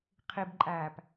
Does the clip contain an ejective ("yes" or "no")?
yes